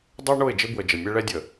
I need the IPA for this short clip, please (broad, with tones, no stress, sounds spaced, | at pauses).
dˤ œ˦ ɳ o˦˨ ɪ̯ d͡ʒ ɪ˦ b w ə˨ d͡ʒ ə˨ mʲ ɛ˦ ɭ ɛ˦ dʲ ə˨